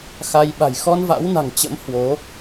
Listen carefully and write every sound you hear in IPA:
xa˧j ɓa̤˨˩jxɔ˧n va̰˧˥wna̤˨˩ŋt͡ɕə̰˧˥m hwo˨˦

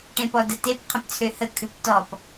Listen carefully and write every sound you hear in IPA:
ʈẽpɔdətep qʰə̃pt͡sʰøhə kʰʉptɔp

